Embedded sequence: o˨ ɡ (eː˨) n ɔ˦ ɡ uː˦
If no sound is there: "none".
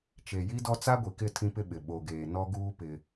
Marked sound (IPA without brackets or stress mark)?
eː˨